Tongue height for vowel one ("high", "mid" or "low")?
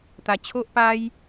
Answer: low